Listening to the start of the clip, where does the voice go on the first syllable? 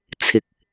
low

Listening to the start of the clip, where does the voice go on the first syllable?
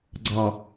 low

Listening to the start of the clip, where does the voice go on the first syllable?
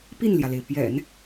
falling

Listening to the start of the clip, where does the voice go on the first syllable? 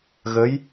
rising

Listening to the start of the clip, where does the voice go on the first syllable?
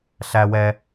low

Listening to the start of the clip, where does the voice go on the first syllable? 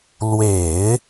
low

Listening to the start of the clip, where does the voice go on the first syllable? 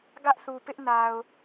high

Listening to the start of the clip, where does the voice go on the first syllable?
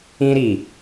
high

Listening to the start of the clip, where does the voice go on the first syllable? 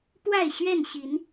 falling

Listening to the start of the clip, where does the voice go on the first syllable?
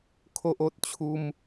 high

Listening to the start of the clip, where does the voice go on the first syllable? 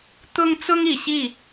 high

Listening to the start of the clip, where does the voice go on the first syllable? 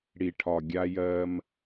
low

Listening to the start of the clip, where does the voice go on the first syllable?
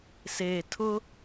low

